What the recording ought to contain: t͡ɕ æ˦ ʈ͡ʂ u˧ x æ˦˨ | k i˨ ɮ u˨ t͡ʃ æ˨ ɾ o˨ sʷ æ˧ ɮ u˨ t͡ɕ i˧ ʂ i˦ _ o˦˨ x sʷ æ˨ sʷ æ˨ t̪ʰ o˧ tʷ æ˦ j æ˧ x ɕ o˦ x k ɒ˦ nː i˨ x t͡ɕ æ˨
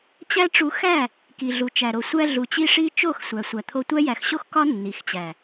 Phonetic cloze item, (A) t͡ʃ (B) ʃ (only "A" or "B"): A